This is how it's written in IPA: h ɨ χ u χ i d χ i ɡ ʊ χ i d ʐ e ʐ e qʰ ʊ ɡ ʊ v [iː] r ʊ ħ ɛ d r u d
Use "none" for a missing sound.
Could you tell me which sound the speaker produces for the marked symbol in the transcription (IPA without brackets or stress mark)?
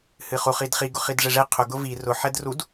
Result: i